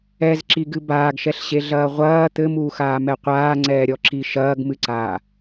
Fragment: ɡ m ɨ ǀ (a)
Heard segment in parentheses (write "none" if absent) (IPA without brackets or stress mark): aː